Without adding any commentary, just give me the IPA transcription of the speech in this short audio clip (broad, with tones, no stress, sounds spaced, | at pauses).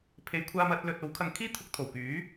pʰ e˨˧ j kʷʰ aː˧ m ɐ˨˥ t̚ l ɵ˧ t̚ o˨˥ w kʰ ɐ˧ ŋ kʰ iː˥ t̪ʰ ʊ˧ k̚ t̪ʰ o˨˩ w k yː˨˥